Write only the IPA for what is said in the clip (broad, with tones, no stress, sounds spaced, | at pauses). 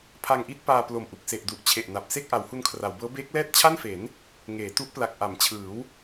pʰ a˧ ŋ ʔ i˥˩ t̚ p aː˧ p l o˨˩ m ʔ u˨˩ k̚ s e˨˩ ʔ d u˨˩ ʔ t͡ɕʰ e˨˩ ʔ n a˨˩ p̚ s e˥˩ k̚ ʔ a˩˦ w h u˧ n kʰ r a˩˦ w b ɤː˦˥ b eː˦˥ k̚ l ɛː˥˩ t̚ t͡ɕʰ a˥˩ n f e˩˦ n | ŋ eː˩˦ t u˦˥ ʔ p l a˨˩ k̚ ʔ a˩˦ m t͡ɕʰ ɯː˩˦ w